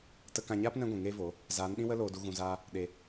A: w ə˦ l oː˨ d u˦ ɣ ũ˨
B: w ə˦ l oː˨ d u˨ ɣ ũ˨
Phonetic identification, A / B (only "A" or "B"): B